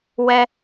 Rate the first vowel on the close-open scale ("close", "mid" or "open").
mid